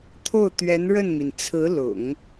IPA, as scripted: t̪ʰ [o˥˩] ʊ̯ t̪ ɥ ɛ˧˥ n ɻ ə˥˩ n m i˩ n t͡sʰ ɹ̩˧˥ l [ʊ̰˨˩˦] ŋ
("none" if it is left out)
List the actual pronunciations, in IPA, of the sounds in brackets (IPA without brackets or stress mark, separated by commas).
o˥˩, ʊ̰˨˩˦